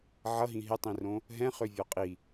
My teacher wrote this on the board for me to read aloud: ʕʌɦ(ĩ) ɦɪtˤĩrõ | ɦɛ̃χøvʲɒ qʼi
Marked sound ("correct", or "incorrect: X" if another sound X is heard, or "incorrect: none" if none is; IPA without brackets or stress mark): correct